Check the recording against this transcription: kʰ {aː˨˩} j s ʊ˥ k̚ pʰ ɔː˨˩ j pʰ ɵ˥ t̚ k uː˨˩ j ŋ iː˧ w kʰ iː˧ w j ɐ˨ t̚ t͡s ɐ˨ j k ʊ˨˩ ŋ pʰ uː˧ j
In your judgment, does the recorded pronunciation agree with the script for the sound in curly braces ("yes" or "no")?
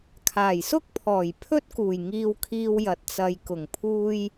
yes